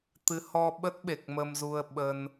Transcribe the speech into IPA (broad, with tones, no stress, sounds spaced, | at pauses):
t̪ ɨ˨˦ h ɔ˧ ɓ ə˦˥ t̚ ɓ e˨˩ k̚ m ə˧ m z u˧ ə̯ ɓ ə˧ n